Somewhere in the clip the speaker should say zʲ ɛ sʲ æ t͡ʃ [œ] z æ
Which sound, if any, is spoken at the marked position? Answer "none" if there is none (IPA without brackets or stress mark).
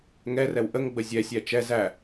ɛ